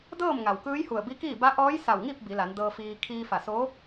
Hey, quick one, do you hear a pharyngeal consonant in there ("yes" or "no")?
no